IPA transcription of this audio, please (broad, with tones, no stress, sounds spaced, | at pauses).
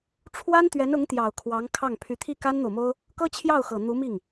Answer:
ʈ͡ʂʰ w a˥ n t̪ ɥ ɛ˧˥ n ʊ˧˥ ŋ t̪ j ɑ˨˩ ʊ̯ kʰ w ɑ˧˥ ŋ kʰ ɑ˥˩ ŋ pʰ y˧˥ t̪ʰ i˥˩ k a˥ n n̪ o˨ ʊ̯ m o˥ ʊ̯ | k ɤ˥ t͡ɕʰ j ɑ˥˩ ʊ̯ x ɤ˨˩ n̪ u˧˥ m i˥˩ ŋ